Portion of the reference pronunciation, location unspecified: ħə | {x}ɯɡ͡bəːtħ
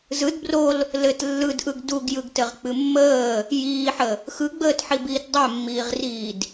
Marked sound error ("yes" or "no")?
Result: no